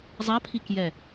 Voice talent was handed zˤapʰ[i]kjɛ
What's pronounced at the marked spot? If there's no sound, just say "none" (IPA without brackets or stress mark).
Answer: i